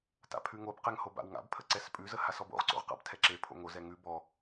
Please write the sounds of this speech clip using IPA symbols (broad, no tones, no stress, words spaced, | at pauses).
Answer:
ta̰pʰʉŋobqɛŋ hoba̰wŋa̰bpʰə ǀɛspʼʉzə hasɔbo̰ʁǀo̰ʁ qa̰btʰɛǁepʰo̰ ŋozɛ ŋʉ bɔ